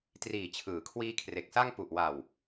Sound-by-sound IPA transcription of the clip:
t r iː˨˩ t͡ɕʰ ɯː˩˦ kʰ w iː˦˥ kʰ r e˨˩ k̚ s a˥˩ ŋ p u˨˩ ʔ w a˨˩ w

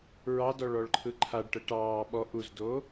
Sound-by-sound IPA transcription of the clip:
ɹ ɑ d ɔ ɭ ɔ ɭ ǃʰ ɯ ǃʰ a ɖ ʈ ə ʈ ɑː ɓ ɔ ʔ u z d oː

